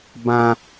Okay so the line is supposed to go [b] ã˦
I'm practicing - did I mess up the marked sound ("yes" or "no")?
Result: no